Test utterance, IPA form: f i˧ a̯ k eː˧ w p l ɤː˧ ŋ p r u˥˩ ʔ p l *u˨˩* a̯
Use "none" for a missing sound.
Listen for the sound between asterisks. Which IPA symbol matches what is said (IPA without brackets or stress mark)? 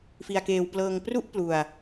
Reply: u˧